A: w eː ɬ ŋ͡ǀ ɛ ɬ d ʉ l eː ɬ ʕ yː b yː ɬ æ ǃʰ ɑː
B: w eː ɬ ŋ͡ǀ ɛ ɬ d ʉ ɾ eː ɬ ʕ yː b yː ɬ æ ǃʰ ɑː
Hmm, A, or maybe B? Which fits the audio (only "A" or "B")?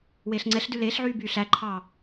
A